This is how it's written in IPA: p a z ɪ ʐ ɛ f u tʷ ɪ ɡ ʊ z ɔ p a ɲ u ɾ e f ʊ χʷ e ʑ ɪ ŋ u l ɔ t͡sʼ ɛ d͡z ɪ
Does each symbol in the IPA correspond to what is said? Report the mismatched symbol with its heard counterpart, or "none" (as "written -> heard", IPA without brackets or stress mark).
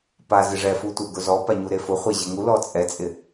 d͡z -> t͡sʼ